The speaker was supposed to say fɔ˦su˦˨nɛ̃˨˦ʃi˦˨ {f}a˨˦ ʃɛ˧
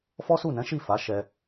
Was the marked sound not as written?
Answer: no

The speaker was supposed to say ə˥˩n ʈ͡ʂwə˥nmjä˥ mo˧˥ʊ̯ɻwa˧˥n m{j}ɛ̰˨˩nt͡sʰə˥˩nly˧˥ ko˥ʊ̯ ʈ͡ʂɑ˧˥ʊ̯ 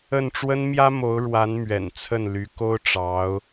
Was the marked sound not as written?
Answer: yes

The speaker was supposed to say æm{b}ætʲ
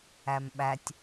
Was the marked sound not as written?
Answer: yes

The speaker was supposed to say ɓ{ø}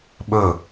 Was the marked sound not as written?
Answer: yes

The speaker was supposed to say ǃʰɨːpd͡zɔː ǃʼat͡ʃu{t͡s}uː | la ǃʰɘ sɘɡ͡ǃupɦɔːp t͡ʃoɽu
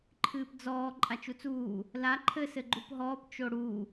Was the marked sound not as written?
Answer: no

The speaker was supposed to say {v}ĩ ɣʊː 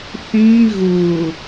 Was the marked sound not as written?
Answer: yes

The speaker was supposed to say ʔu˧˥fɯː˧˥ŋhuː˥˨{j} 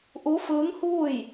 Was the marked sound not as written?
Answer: no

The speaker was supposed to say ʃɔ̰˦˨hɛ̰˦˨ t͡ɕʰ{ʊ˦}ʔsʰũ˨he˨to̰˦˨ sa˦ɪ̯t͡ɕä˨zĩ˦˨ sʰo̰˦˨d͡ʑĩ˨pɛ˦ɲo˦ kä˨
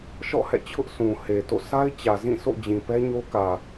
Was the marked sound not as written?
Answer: no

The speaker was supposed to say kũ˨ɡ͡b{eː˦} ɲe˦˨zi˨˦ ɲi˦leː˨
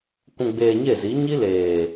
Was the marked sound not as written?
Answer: yes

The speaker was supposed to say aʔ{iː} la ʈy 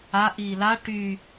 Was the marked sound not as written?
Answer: no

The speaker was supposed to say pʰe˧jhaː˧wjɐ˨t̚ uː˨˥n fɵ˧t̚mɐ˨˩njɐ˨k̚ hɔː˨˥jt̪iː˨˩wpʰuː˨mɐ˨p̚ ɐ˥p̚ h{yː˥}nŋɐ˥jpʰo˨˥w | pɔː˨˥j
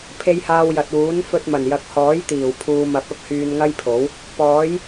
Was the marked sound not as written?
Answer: yes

